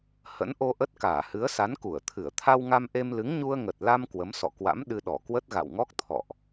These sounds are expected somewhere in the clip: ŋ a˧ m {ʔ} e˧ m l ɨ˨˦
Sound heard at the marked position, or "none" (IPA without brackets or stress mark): ʔ